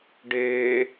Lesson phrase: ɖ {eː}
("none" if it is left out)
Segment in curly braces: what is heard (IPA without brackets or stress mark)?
eː